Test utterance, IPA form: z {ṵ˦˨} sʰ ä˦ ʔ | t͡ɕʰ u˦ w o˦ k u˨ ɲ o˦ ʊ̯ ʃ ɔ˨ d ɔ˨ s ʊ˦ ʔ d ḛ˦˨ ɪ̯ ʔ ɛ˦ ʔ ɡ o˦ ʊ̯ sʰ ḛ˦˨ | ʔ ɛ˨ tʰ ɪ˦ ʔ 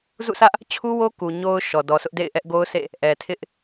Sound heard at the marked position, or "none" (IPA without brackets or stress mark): ṵ˦˨